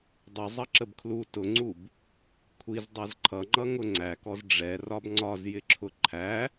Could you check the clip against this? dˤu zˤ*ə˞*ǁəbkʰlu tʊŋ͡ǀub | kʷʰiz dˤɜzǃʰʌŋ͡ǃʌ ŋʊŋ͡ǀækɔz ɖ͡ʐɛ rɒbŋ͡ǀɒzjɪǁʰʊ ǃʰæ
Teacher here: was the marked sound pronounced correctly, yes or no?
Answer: no